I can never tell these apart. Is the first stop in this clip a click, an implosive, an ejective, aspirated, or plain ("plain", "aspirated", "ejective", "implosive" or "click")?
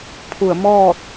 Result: aspirated